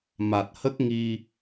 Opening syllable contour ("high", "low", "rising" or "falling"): low